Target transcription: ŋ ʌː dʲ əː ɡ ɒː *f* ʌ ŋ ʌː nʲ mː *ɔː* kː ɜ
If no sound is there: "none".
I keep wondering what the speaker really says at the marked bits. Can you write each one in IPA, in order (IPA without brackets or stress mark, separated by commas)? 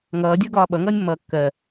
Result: ɓ, ʌː